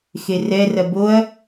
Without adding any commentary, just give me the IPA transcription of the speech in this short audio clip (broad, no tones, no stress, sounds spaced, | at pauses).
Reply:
x e r ɛ r ɐ b o ɐ̯